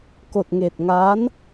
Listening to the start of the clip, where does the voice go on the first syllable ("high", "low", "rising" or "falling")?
low